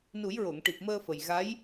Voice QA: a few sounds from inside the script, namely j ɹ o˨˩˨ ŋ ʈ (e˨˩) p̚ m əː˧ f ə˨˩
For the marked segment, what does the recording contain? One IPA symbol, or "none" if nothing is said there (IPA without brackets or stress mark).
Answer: i˨˩